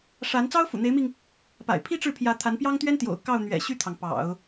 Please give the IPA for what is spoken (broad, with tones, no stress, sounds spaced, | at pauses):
ʂ a˧˥ n t͡s ɑ˥ ʊ̯ f ṵ˨˩ n̪ e˧˥ ɪ̯ m i˧ ŋ | p a̰˨˩ ɪ̯ pʰ i˥ ʈ͡ʂ ɻ̩˥˩ pʰ j ä˧˥ t̪ʰ a˧˥ n p j ɑ˥ ŋ t̪ ɥ ɛ˥ n t̪ j o̰˨˩ ʊ̯ k ɑ˥˩ ʊ̯ n̪ ɥ ɛ̰˨˩ ɕ y˥˩ t̪ʰ ɑ˩ ŋ p ɑ̰˨˩˦ ʊ̯